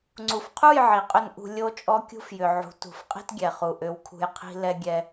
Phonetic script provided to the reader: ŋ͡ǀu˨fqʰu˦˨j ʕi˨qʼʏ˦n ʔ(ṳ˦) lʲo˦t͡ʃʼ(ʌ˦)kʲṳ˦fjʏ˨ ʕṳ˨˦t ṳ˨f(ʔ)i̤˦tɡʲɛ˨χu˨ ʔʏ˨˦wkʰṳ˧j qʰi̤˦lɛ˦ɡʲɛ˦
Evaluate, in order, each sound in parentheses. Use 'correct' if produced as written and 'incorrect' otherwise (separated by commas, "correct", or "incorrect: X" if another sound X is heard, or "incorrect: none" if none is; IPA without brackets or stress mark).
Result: incorrect: ṳ˧, incorrect: ɔ˦, incorrect: qʼ